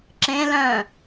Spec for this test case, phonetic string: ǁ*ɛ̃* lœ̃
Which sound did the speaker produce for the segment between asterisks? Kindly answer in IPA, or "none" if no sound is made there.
ẽ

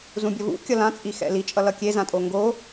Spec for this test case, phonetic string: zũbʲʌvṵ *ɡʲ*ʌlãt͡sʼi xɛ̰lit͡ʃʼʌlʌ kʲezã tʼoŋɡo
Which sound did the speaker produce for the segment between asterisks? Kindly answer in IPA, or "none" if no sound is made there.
kʲ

